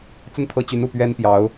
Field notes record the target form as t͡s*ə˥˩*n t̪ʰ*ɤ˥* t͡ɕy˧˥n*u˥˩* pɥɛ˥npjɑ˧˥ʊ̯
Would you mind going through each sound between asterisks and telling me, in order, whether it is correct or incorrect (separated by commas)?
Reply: correct, correct, correct